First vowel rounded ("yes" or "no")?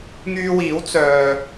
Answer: yes